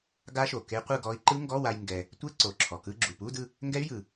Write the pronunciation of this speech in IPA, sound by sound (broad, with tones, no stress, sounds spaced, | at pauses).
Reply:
ɡ a˦˥ ʃ o˩ k e˦˥ qʷ ɯ˥˧ ɡ ɔ˦˥ i̯ ǃ ɯ˦˥ ŋ ɡ ɔ˧˥˧ w a˧ j ŋ ɡ ɛ˧ | tʷ e˧˥˧ ǀ o˩ ǁʰ ɔ˩ k ɯ˧˥˧ ɡ͡ǁ u˩ p u˧˥˧ d ɯ˥˧ | ŋ ɡ ɛ˦˥ y̯ j ɯ˩